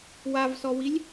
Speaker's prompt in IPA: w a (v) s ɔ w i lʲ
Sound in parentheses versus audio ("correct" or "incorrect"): correct